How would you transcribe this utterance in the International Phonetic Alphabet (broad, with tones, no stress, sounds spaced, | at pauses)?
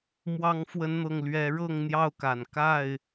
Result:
m w ɑ˨˦ ŋ f w ə˨˦ n n̪ ɤ˨˩ ŋ l ɥ ɛ˨˦ ɻ ɤ˥˨ ŋ n̪ j ɑ˥˨ ʊ̯ k a˨˩ n k a˥˨ ɪ̯